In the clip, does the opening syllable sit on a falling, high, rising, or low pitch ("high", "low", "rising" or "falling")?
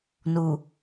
low